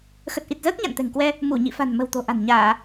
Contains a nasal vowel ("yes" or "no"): no